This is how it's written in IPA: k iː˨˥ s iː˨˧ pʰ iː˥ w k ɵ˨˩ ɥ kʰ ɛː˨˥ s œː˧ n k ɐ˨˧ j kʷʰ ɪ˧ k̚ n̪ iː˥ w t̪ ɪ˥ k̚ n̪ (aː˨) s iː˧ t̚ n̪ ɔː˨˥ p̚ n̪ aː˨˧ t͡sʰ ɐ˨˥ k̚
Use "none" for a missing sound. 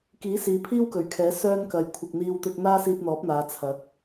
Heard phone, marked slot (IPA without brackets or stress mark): aː˥